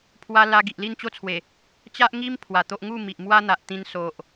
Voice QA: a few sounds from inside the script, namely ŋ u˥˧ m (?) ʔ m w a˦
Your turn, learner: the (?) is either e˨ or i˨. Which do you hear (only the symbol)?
i˨